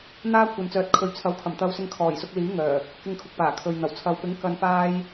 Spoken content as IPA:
n̪ aː˥ kʷʰ ɐ˨ n t͡s œː˨ t̚ kʰ ɵ˨ ɥ t͡sʰ ɐ˨˥ w kʰ ɐ˨˩ m t̪ ɐ˧ w s ɪ˧ ŋ kʰ ɔː˨˩ j s ʊ˧ k̚ l iː˨˥ ŋ œː˨˩ | k ɪ˧ ŋ kʰ ʊ˨ k̚ p aː˨˩ kʰ ɵ˨ ɥ n̪ ɐ˨˩ w t͡sʰ ɐ˨ w p ɪ˨˥ ŋ k ɐ˧ n p aː˥ j

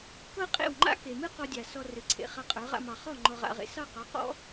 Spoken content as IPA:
k ɤ˦ qʼ ḛ˦˨ w ŋ͡ǃ a̰˦ k e˨ m ɨ˦ q ɔ˧ dʲ a˨ s ɔ˧ r ɨ˨ ǀʰ ḛ˨ χ a˧ qʼ ə˞˨˦ ʁ a̰˧ m ɑ˨ χ ɔ˦˨ ŋ͡ǃ ɔ˧ ʁ a̰˧ ʁ ḛ˧ s ɑ˦˨ q ɑ˨˦ q ɔ̰˦

